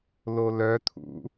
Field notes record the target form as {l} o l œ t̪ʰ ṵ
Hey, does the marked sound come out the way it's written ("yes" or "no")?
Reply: yes